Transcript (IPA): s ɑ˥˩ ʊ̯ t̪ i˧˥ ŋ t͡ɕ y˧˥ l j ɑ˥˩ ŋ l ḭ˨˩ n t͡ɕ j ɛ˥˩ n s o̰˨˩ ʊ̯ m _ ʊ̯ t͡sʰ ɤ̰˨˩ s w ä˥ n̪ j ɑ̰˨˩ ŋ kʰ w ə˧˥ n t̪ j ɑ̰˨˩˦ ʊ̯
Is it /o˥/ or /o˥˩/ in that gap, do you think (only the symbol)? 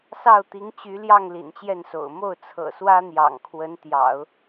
o˥˩